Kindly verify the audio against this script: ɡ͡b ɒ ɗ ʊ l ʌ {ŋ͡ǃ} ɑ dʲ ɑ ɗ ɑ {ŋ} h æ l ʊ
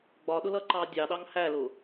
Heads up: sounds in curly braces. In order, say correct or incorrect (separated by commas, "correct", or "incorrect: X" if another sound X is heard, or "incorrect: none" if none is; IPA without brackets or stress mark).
incorrect: ǃ, correct